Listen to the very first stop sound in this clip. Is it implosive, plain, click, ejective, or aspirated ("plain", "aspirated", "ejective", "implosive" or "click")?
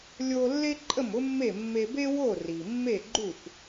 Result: click